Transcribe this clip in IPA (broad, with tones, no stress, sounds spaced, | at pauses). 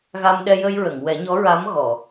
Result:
ɣ a˧ m ɗ ɛ˧ j ə˧ j ɹ ə˨˩˨ ŋ w ɛ˨˩˦ ɲ ɔ˧˥ ɹ a˧˥ m ɣ ɔ˨˩˨